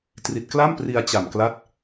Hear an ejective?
no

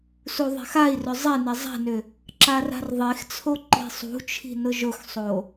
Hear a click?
yes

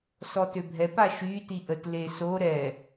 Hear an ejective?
no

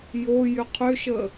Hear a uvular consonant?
yes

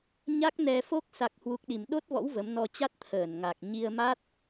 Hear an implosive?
yes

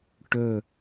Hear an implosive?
no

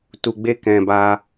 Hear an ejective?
no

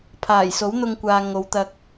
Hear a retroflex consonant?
no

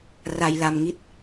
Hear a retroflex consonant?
no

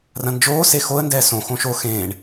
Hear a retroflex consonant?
yes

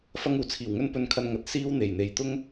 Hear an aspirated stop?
yes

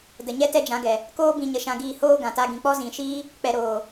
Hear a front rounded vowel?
no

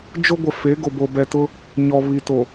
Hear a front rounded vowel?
no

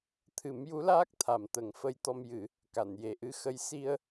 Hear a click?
no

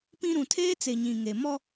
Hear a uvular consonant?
no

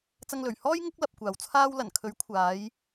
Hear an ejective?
no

